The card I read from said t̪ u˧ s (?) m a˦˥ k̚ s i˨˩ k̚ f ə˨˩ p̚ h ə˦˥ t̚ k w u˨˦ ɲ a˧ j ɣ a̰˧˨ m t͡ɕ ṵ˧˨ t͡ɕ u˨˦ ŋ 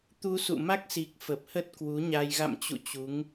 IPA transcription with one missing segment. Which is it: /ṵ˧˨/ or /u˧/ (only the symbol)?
ṵ˧˨